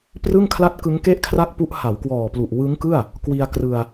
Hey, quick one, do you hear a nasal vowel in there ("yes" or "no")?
no